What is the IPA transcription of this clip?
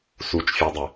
s u t͡ʃ fʲ ɔ dˤ ɪ

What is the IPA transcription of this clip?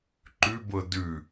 ǃ ʉ b ɤ d ʉ

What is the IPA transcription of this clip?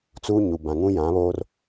t͡s uː˦ ɲ u˨ b ã˨ ŋ ũ˦ j ã˨˦ β oː˦ r

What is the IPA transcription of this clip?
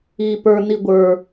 iː p ə˞ n i ɡʷ ə˞

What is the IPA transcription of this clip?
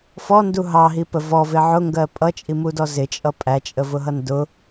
f ɔ n d u ɦ ɑ ɦ i p ə v ɔ v ɪ ʕ ʊ ŋ ɡ ɜ pʼ ʌ t͡ʃʼ i m u d ɔ z ɪ t͡ʃʼ ʌ pʼ æ t͡ʃʼ ə v ʊ ɦ ʌ n d ʊ

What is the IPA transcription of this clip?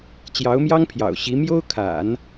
t͡ɕ j ɑ˧˥ ʊ̯ m j ɑ˥ ŋ pʰ j ɑ̰˨˩ ʊ̯ ɕ i˧˥ m j o˥ ʊ̯ kʰ a̰˨˩˦ n

